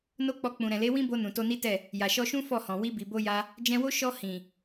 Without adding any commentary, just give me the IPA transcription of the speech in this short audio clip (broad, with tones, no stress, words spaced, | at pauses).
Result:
no˦k͡pɔ˧ k͡pũ˨ɾɛ̃˨le˨˦ wĩ˦bo˧ nũ˨to˧ni˦tɛ˦˨ | ja˨ʃɔ˧ʃũ˦ fɔ˦˨hɔ̃˨ wi˧bi˨bo˧ ja˦ | d͡ʒɛ̃˧wo˦ ʃɔ˧ hĩ˨